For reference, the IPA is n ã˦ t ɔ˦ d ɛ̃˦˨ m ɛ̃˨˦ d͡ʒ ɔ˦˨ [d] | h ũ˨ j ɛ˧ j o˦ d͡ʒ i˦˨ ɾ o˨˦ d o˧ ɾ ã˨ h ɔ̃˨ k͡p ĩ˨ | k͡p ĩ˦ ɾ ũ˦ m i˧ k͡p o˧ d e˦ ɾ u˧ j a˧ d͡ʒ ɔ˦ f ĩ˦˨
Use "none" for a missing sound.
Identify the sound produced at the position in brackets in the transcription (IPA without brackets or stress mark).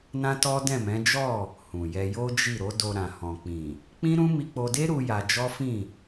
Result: none